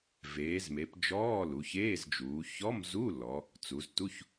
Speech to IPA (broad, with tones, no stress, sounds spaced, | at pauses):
v eː˩˧ z m e˩˧ p d͡ʒ ɔː˧˥˧ l u˩˧ ç eː˧˥˧ z d͡ʒ uː˩˧ ç ɔ˧˥˧ m z u˧˥˧ l ɔ˩˧ | t͡s u˩˧ z t u˧˥˧ ç